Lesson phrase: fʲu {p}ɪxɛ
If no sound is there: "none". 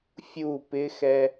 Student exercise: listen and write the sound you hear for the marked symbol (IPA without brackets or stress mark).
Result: p